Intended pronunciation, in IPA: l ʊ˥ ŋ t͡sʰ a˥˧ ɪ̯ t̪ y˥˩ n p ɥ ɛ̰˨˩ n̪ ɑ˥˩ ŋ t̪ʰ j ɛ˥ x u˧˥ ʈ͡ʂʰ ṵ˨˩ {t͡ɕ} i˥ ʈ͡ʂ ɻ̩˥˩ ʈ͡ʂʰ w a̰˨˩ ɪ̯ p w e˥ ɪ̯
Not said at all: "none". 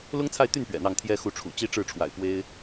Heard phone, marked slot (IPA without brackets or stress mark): t͡ɕ